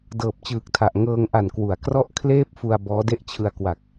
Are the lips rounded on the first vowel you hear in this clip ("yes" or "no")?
no